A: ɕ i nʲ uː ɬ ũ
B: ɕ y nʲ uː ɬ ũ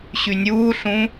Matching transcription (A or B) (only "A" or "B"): B